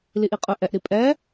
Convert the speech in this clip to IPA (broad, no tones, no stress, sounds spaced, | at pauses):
l i ʔ i qʼ ɵ ʔ ɛ ʔ ɾ i pʼ ɛ